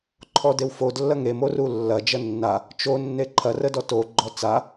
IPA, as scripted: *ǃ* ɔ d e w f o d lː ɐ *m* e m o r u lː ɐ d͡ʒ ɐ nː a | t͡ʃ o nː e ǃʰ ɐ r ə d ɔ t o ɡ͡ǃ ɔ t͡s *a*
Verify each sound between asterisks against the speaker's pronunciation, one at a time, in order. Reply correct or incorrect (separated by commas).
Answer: incorrect, incorrect, correct